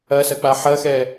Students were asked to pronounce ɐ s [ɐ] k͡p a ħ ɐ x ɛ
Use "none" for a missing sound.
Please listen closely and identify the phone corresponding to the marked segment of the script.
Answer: ɐ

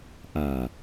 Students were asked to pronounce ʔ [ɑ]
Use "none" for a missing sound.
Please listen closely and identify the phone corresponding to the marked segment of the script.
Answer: a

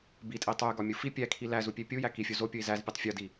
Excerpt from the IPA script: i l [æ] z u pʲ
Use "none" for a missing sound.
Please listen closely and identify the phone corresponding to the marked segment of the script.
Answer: æ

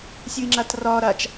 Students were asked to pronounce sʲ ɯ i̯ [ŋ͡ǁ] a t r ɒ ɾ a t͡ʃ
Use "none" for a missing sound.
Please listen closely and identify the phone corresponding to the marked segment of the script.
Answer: ŋ͡ǁ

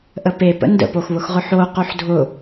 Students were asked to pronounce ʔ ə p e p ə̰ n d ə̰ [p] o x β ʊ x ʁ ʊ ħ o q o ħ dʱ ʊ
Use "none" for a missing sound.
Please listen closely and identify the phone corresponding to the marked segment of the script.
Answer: p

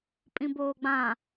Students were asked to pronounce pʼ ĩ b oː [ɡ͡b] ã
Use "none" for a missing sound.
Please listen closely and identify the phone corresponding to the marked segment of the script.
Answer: ɡ͡b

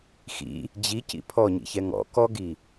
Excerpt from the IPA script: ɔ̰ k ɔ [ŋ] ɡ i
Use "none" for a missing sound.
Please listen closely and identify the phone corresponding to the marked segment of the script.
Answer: none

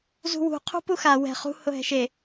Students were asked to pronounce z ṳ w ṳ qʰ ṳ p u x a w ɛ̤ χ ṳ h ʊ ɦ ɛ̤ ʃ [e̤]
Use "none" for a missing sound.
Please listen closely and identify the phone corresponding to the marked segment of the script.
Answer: e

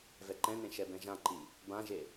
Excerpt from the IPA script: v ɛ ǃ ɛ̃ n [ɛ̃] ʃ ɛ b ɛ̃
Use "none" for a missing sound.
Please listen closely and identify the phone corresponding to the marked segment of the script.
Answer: ẽ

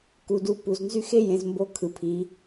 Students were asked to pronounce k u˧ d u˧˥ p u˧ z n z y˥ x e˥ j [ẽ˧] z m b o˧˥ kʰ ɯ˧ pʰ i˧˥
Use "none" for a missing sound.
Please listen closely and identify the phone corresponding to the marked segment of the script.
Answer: ẽ˧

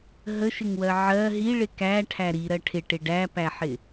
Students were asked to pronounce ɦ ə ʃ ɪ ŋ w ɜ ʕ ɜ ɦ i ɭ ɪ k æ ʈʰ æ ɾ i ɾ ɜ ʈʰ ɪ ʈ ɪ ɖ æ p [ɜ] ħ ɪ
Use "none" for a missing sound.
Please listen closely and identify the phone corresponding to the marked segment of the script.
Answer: æ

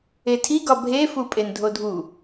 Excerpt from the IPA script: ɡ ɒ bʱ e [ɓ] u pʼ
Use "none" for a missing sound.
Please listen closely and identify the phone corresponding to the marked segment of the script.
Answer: f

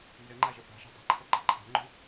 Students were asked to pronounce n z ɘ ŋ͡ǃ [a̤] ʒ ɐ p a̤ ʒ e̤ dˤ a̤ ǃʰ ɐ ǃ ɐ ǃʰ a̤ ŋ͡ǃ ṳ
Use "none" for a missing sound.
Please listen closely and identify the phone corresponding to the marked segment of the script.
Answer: a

